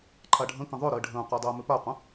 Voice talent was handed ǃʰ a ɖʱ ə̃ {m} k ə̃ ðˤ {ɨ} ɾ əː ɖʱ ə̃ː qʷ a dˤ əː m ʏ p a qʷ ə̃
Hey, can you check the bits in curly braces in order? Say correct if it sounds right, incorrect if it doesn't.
incorrect: none, incorrect: ʏ

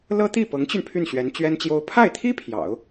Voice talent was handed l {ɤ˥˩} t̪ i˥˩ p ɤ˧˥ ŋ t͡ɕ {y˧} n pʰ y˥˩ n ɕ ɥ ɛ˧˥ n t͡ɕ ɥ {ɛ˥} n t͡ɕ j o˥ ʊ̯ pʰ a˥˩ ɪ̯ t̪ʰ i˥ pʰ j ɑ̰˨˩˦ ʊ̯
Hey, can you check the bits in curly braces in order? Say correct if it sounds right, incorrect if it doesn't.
incorrect: ɤ˥, correct, correct

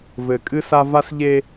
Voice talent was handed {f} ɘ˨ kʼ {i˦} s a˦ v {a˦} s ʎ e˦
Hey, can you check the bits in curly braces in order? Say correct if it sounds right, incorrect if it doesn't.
incorrect: v, incorrect: ɨ˦, correct

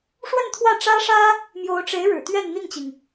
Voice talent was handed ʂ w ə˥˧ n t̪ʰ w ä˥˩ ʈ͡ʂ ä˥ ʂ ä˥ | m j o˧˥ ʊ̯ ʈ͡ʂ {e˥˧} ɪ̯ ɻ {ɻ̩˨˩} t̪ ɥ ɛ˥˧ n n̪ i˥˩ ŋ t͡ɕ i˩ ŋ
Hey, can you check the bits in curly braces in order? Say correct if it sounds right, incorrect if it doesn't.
incorrect: e˧˥, correct

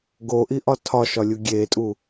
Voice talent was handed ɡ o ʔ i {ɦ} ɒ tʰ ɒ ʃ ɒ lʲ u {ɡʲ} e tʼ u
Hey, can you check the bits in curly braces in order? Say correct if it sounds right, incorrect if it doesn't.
incorrect: ʔ, correct

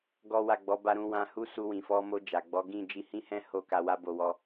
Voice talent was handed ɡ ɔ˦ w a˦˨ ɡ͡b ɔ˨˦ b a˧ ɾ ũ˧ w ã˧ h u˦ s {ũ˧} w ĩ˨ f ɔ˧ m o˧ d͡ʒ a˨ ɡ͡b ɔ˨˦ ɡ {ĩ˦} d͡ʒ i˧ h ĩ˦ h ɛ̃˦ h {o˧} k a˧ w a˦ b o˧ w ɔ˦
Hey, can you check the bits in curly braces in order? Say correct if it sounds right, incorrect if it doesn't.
incorrect: u˧, incorrect: ĩ˦˨, incorrect: o˦˨

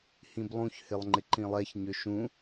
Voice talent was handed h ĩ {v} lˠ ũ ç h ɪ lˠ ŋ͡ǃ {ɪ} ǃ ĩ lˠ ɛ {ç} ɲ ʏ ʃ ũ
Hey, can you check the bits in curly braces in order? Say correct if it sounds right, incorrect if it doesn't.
incorrect: b, correct, correct

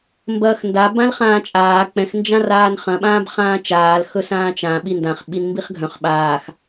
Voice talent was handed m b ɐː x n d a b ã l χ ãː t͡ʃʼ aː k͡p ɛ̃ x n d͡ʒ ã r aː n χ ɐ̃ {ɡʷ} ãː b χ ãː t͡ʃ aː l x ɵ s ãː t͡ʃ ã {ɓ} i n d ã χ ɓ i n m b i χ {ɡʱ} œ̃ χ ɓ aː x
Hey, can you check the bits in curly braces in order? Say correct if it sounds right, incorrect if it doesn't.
incorrect: ɓ, correct, correct

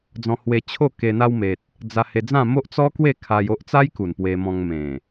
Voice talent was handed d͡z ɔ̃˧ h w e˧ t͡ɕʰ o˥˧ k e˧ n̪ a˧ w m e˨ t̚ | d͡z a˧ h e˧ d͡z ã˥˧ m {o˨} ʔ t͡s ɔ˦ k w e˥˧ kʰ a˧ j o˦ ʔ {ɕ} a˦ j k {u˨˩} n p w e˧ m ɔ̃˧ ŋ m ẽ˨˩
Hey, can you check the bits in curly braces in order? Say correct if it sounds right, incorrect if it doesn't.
incorrect: o˦, incorrect: t͡s, correct

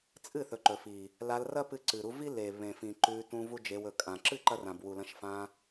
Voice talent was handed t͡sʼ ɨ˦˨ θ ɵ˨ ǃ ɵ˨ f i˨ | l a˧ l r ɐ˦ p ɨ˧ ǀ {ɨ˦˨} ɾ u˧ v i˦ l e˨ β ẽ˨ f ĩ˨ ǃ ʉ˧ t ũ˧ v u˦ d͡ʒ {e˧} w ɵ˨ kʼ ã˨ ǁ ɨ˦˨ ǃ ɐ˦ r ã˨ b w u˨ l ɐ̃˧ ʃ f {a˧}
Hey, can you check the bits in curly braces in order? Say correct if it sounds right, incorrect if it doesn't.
incorrect: ɨ˨, correct, incorrect: ã˧

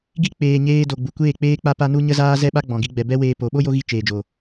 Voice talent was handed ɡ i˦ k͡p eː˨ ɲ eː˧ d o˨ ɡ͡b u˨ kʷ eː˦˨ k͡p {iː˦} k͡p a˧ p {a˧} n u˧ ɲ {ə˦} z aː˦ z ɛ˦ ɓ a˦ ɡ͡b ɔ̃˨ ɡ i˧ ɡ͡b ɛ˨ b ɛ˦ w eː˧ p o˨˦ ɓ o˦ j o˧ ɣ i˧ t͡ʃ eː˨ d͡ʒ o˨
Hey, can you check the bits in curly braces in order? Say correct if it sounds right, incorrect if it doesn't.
incorrect: eː˦, correct, correct

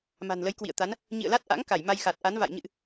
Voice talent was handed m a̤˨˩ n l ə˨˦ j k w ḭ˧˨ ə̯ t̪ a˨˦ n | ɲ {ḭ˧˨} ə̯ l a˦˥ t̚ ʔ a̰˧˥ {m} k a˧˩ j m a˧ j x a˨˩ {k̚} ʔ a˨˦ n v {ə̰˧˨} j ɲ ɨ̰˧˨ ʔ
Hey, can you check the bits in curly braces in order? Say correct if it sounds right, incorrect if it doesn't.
correct, incorrect: ŋ, incorrect: t̚, incorrect: a̰˧˨

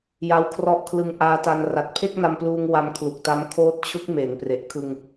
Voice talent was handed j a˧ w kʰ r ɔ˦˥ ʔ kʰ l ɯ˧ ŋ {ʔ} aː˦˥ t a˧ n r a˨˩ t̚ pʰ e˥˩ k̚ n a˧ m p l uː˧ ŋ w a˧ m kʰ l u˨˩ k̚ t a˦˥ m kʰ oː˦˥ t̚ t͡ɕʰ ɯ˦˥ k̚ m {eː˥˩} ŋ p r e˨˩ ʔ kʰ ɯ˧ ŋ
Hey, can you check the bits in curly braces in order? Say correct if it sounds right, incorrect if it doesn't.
correct, incorrect: eː˩˦

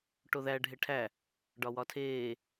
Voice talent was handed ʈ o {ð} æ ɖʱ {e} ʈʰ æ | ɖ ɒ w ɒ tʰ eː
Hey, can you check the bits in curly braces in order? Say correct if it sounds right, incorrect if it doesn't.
correct, correct

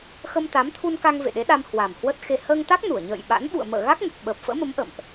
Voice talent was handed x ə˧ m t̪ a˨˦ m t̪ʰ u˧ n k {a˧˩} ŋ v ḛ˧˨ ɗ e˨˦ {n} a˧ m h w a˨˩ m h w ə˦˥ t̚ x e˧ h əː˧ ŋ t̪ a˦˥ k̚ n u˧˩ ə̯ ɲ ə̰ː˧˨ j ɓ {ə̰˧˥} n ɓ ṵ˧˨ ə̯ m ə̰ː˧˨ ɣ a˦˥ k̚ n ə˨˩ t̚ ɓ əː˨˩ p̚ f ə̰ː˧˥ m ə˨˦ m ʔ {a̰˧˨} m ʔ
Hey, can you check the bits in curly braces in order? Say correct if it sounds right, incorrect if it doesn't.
incorrect: a˧, incorrect: ɗ, incorrect: a̰˧˥, incorrect: ə̰˧˨

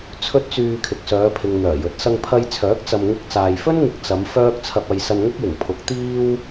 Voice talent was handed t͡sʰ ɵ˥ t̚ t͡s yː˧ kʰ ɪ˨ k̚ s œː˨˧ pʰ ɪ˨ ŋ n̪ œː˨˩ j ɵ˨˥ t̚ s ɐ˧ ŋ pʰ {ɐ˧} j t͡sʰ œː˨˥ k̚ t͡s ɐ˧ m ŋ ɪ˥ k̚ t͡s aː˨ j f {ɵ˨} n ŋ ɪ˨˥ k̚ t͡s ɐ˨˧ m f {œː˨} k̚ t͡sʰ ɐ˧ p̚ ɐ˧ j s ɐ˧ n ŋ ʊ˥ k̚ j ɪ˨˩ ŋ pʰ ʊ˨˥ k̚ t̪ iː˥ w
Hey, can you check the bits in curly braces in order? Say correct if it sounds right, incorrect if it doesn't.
correct, incorrect: ɵ˥, incorrect: œː˥

